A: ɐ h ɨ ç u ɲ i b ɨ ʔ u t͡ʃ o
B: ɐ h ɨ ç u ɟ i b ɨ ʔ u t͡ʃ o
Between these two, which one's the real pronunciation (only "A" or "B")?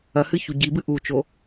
B